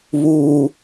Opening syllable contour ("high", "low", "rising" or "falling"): low